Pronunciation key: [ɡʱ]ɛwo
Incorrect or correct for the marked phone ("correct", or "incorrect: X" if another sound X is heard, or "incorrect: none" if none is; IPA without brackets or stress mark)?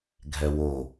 correct